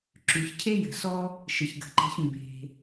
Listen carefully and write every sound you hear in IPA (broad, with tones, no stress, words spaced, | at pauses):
ǁʉ˩çcʰe˥ jə̤˩sɔ˥ | ʃə˩çɡə̤˩ǃe̤˧ç mbe̤˩